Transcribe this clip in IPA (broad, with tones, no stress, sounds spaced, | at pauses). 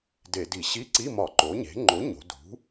d e˧˩˧ d i˧˩˧ ɕ i˧˥˧ ǀ i˧˥˧ m ɒ˧˩˧ ǃ o˩˥ ɲ e̤˩˥ ŋ͡ǃ o˩˥ ɲ o̤˩˧ d ṳ˩˥